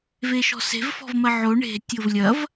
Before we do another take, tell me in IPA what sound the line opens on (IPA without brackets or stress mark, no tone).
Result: v